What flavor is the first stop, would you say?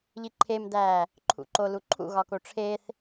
click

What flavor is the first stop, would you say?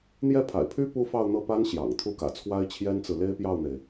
aspirated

